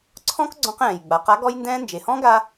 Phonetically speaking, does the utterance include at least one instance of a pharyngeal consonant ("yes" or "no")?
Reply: no